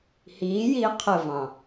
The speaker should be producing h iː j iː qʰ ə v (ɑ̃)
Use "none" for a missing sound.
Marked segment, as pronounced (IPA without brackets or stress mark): ɑ̃